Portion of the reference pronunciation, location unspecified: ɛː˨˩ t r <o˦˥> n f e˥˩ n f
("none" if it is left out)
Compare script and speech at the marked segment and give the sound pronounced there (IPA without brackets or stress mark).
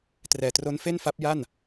o˦˥